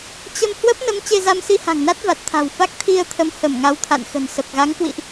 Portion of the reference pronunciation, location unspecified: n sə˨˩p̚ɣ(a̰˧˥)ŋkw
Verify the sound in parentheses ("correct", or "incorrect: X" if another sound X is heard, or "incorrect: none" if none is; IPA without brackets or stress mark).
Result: incorrect: a˨˦